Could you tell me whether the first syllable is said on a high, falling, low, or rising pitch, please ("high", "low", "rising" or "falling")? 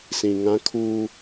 low